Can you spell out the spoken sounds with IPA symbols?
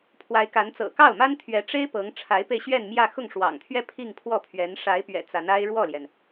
pʰ w a˧˥ ɪ̯ k a˧˥ n t͡s ɤ̰˨˩ k ɑ˥˩ ʊ̯ m a˥ n t̪ʰ ɥ ɛ˧˥ ʈ͡ʂ e˥ ɪ̯ p ɤ˧˥ ŋ ʈ͡ʂʰ a˧˥ ɪ̯ p e˧ ɪ̯ ɕ ɥ ɛ˥˧ n m j ä˥˧ x ʊ˥˩ ŋ ʂ w ɑ̰˨˩ ŋ t̪ʰ ɥ ɛ˥˧ pʰ i˥˧ ŋ pʰ w ɔ˥˩ pʰ ɥ ɛ˧˥ n ʂ a˧˥ ɪ̯ p ɥ ɛ̰˨˩ t͡s a˧˥ n a˥ ɪ̯ ɻ w ɔ˥˩ l j ɛ˩ n

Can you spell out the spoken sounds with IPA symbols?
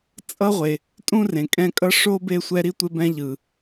t͡sʼ ʌ˥ ʁʷ e˨ | tʼ ũ˥ r ẽ˩ kʼ ɛ̃˦ kʼ ʌ˥ ʂ o˥ b e˦ sʷ ɛ˦ ɾ i˥ tʷ e˦ b ɛ̃˦ ʎ ɯ˩

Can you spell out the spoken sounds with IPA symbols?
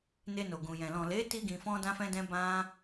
n e˧ n o˨ ɡ ũ˨ j ɛ̃˨ l ɔ̃˨ l e˨˦ t i˧ ɡ ĩ˨ f ɔ̃˧ d ã˧ f ɛ̃˧ d ɛ̃˧ b ã˦

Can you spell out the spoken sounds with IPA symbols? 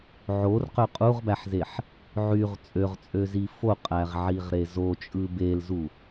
ʕ o r q ø qʼ u ʁ b æ ħ z e ħ | ʕ y ʁ t͡sʼ ø ʁ t͡sʼ ø z i f o qʼ æ ʁ ʕ i ʁ ɾ e z o t͡ʃʼ ɯ b e l z u

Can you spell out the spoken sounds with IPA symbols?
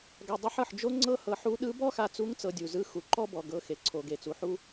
ɡ a˧ dˤ ɯ˧˥ ħ ɤ˩˧ ħ d͡ʒ o˥ ŋ͡ǀ ɤ˥ h ɤ˧ ħ u˧˥ ɗ ɯ˧˥ b ɔ˥ x a˧ t͡s u˧˥ ŋ t͡s ɤ˧ dʲ u˩ z ɯ˧˥ x u˩ ǃ ɔ˥ b ɔ˩ ɡ ɤ˧ x e˩ ǀʰ o˩ ɡ e˩ t͡s u˩ ħ u˥

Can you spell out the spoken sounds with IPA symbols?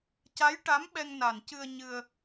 c a˧˥ j ʈ a˧˥ m ɓ ɛ˧ ŋ n a˨˩ n c ɨ˧ ə̯ ɲ ɨ˧ ə̯

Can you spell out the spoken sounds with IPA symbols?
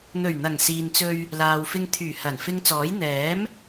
n̪ ɵ˨˩ ɥ n̪ ɐ˨˩ ŋ s iː˨ n t͡s ɵ˧ ɥ | l aː˨ w f ɪ˧ ŋ t̪ʰ yː˨˩ h ɐ˨˩ n f ɪ˧ ŋ t͡s ɔː˨˥ j n̪ ɛː˨˥ m

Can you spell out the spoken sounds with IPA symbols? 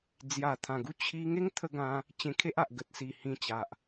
d͡z j a˨˩ t̪ʰ ã˨˩ ɡ u˧ t͡ɕʰ i˧ ŋ e˦ ŋ t̪ʰ ə˧ ɡ ã˧ | t͡ɕ ẽ˧ kʰ e˦ ʔ a˨ ʔ ɡ ə˨ t̚ s i˨˩ h ĩ˧ t͡ɕ a˨ ʔ

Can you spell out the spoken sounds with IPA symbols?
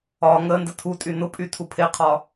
ɒ ŋ ə n d ə tʰ u tʼ y n ʊ pʼ y tʰ u pʰ e qʰ ɒ

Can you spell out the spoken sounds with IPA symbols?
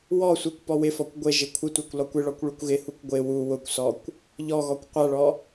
w ɔ sʷ i kʷ p ɔ w ɪ f ɔ kʷ ɡʷ ɪ ʒ ɪ kʷʰ ɪ tʷ a kʷ l ɔ kʷ ɪ ɭ ɔ kʷ ɭ u kʷ ɣ ɪ h u kʷ ɡʷ ɪ w u w ʊ kʷ s ɔ kʷ | ʎ ɔ ɣ ɔ kʷ qʷ a ɭ ɔ

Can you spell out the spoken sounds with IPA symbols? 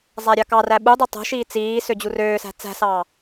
zˤ æ ɾʲ ɑ k ɑ r æ ɓ u dˤ i tˤ o̤ ʃ iː t͡s iː s ø d͡ʑ u r øː s æ̤ t͡s æ̤ s ɑː

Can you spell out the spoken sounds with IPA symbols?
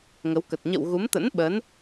ŋ ə˨˦ w k ə˨˩ t̚ ɲ ə̰˧˨ w ɣ u˨˦ m t̪ ə̰˧˥ n ɓ ə˨˦ n

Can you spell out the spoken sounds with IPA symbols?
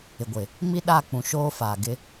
ɪ˨ ɡʷ ɪ˨ | m i˦ ɗ a˦˨ k͡p ũ˨ ʃ oː˦ f aː˨ ɡ ɪ˦

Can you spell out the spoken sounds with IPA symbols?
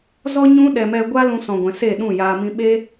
z ɔ˦ ɲ ũ˧ ɗ ɛ˨ m ɛ˨ ɡʷ a˦ l ũ˧ s ɔ̃˨ ɡʷ ɛ̃˨ s e˦˨ ɗ ũ˦˨ j aː˧ m ĩ˧ ɓ e˦

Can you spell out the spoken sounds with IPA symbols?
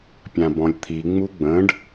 pʲ ã b ɔ̃ lʲ t̪ʰ i ŋ͡m u ɡ͡b ə̃ː ɖ

